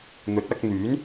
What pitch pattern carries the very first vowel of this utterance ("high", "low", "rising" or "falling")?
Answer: rising